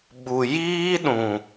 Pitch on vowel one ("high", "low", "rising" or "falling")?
low